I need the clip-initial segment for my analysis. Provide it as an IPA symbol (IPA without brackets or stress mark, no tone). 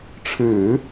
ʈ͡ʂʰ